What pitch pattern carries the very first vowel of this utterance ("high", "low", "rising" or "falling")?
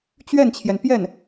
falling